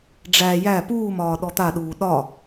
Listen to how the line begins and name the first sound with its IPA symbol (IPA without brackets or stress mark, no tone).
ɖ͡ʐ